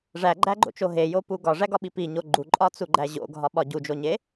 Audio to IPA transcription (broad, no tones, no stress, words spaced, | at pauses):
ʐæɡ͡ǃæɡ͡ǃo̰t͡ʃo ɦejopu ɡɒʐæɡɒɓi piɲo ɡ͡ǃuǃʼɒt͡suɡ͡ǃæ ʑo̰ɡʱɒɓɒ ɟud͡ʒoɲe